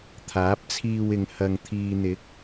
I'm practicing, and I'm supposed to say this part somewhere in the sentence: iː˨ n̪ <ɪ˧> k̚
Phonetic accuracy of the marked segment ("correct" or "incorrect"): incorrect